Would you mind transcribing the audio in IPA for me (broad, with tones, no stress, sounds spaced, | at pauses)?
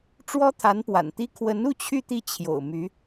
ʈ͡ʂ w ɔ˥ t̪ʰ a˧˥ n p w a̰˨˩ n t̪ i˥ kʰ w ə˧˥ n u˥˧ t͡ɕʰ y˥˧ t̪ i˥˩ t͡ɕʰ j o̰˨˩ ʊ̯ m y˧˥